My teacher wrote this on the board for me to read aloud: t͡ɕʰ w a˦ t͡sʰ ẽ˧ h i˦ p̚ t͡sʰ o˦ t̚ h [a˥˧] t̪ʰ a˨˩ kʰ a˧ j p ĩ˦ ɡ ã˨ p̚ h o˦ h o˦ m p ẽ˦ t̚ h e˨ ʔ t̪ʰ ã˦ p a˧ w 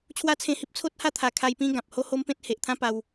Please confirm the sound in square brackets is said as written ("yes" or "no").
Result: yes